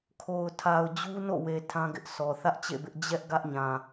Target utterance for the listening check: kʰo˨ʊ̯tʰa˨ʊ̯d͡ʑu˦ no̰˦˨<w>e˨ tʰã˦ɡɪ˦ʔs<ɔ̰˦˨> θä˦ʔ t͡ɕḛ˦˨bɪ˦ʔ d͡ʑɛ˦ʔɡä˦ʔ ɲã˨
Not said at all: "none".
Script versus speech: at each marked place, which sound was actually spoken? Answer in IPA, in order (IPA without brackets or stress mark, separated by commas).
w, ɔ˨